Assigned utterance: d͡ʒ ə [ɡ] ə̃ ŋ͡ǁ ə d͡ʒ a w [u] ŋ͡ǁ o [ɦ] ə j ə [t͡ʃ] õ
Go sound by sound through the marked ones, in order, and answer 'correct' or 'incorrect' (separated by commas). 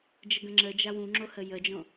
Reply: correct, incorrect, incorrect, incorrect